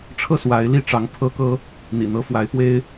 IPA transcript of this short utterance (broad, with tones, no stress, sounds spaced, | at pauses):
ʈ͡ʂʰ ɤ˥˨ s w a˨˦ ɪ̯ l i˥˨ ʈ͡ʂ ɑ˨˦ ŋ pʰ ɤ˦ k ɤ˦ | n̪ ḭ˨˩ n̪ ɤ˦ f w a˨˦ ɪ̯ p w e˦ ɪ̯